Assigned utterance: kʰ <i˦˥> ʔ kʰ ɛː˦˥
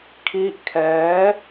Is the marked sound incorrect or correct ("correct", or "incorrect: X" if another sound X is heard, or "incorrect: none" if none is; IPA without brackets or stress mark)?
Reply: correct